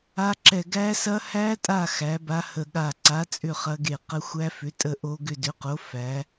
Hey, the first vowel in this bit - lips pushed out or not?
no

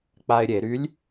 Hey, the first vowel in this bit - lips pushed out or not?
no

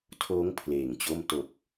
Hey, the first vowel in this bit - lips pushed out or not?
yes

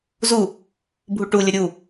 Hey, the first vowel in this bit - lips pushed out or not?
yes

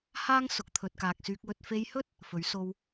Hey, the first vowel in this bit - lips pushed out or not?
no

